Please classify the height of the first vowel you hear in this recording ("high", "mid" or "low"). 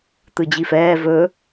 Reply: high